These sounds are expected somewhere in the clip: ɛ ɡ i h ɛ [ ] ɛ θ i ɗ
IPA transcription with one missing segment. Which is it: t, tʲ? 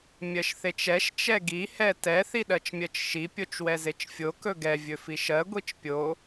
t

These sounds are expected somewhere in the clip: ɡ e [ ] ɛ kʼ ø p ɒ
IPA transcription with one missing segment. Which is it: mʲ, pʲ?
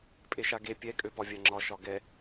pʲ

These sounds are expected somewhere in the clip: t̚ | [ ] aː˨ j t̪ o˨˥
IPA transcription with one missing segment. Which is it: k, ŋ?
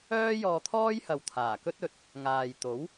ŋ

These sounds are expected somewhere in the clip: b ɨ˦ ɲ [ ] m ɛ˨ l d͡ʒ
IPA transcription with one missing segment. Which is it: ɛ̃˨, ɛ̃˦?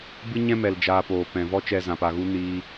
ɛ̃˦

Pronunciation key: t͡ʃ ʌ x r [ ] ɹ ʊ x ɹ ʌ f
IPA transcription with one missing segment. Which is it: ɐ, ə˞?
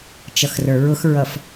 ə˞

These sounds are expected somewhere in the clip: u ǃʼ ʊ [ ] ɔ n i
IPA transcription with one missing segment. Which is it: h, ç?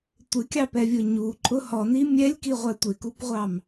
h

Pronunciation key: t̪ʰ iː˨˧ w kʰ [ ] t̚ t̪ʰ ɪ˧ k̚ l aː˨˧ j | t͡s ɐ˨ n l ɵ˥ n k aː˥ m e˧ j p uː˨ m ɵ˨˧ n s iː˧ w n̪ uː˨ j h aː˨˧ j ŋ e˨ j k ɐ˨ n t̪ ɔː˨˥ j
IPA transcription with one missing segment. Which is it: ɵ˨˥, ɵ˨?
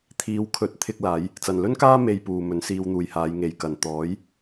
ɵ˨˥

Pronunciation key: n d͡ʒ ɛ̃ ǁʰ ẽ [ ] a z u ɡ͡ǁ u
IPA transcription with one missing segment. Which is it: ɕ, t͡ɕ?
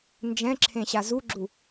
ɕ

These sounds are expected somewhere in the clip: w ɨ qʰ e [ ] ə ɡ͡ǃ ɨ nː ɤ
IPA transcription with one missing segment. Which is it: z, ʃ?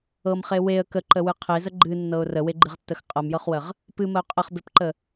z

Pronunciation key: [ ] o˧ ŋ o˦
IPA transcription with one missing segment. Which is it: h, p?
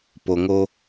p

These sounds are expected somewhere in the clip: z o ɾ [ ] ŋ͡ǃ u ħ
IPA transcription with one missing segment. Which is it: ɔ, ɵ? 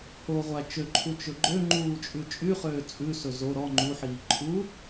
ɔ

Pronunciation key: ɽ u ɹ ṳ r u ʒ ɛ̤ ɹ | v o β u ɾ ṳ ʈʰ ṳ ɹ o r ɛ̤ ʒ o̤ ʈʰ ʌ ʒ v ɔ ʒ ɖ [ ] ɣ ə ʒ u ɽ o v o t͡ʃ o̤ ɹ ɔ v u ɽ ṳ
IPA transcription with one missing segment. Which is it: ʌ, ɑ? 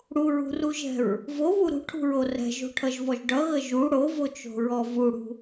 ʌ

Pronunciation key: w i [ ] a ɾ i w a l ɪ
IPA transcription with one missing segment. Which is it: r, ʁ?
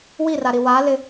r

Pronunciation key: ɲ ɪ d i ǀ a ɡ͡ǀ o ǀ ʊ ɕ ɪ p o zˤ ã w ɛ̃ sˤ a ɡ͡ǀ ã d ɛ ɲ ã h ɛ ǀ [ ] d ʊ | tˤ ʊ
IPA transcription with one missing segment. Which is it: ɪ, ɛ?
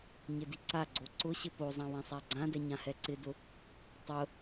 ɪ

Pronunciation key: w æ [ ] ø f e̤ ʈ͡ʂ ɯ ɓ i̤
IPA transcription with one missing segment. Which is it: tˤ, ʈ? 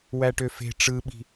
ʈ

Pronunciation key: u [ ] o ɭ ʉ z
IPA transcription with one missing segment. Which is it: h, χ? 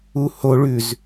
h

